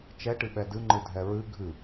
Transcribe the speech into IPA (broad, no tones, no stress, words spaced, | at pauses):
t͡ʃɛʈɨɓɛ dɨŋ͡ǃɨ dʱɛɹɨ ɡʱɨ